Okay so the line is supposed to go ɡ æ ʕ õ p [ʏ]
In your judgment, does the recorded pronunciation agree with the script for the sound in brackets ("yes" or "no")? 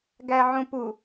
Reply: no